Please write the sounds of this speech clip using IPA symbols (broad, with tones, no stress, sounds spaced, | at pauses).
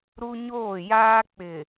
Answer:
ɾ u˦ ɲ oː˦˨ j aː˦ k͡p ɪ˨